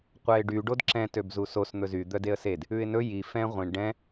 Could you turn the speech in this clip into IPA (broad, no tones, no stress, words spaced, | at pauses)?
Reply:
qʷɛɪ̯ɖy ɖodǁɛ̃ tøbzusos n̪ɵzy d̪œdeə̯sed | ʉɪ̯nɵ ji fɛ̃ ʁʷĩɳ ɖɛ̃